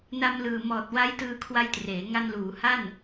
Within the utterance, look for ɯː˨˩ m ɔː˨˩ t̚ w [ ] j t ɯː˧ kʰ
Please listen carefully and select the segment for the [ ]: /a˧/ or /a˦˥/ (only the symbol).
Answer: a˦˥